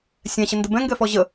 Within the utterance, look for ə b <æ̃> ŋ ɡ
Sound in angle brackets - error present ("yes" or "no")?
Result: yes